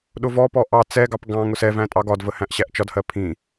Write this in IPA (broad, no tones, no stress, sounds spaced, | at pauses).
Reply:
ɗ ʊ v ɔ p ɔ ʔ ɑ t͡s ɛ ɡ ɑ p ɡ ɑ̃ ŋ ʊ s ɛ v æ̃ tʼ ɑ ɡ ɒ d v ə h æ̃ ʔ ɕ æ ʔ t͡ʃ ɒ d h ɜ pʰ ĩ